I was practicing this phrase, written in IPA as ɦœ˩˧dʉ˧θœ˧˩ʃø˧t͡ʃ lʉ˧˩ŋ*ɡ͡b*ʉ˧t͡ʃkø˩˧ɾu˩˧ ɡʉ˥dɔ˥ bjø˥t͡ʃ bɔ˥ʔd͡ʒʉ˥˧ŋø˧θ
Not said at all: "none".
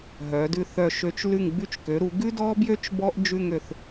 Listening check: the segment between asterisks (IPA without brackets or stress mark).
ɡ͡b